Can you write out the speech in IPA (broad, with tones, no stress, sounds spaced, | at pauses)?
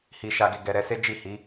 h i˨ ʃ a˨ ɡ e˨ ɡ ɛ˨ ɾ ɛ˧ s e˦ d͡ʒ i˦˨ h i˨˦